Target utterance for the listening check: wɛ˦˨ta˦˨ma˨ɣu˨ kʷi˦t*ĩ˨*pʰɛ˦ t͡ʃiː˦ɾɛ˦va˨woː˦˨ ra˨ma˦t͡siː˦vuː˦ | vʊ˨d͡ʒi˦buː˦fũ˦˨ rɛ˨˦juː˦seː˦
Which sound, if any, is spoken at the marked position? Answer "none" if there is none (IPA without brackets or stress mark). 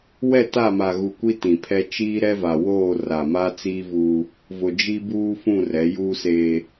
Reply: ĩ˨